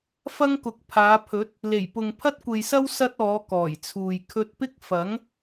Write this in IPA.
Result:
f ɐ˥ ŋ k ʊ˨˥ k̚ pʰ aː˨˧ pʰ ɵ˨˥ t̚ | l e˨˩ j p ʊ˨ ŋ pʰ ɐ˥ t̚ kʷ e˨ j s ɐ˥ w s ɐ˥ t̚ ɔː˨˧ k ɔː˨˩ j t͡sʰ uː˨ j kʰ ɵ˧ t̚ p ɪ˥ k̚ f ɐ˨˥ ŋ

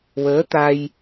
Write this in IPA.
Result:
w əː˧˥ t̪ a˧ j

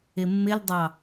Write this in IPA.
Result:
ɪ mː ɪ l dˤ ɑ

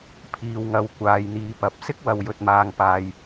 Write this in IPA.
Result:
pʰ iː˨ w ŋ ɐ˨˥ w kʷ aː˧ j n̪ iː˧ p ɐ˨˥ p̚ s ɪ˥ k̚ w ɐ˨ w j ɵ˧ t̚ m aː˧ ŋ p aː˧ j

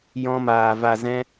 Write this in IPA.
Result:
j ɔ̃˧ m aː˨ v a˨ z ɛ̃˧

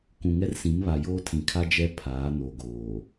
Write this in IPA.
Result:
k ũ˨ ŋ ɛ˦ r s ĩ˨˦ m β a˨ j oː˦ tʰ ĩ˨ kʰ a˦ d͡ʒ ɛ˦ pʰ aː˨˦ n o˨ ɡ oː˨

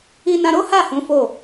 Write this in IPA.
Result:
i˧ n ã˧ ɾ o˦ h a˦˨ h ũ˨˦ f o˦˨

